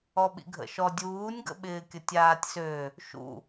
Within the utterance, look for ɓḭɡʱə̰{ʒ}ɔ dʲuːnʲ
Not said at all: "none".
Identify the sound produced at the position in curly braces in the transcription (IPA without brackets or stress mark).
ʃ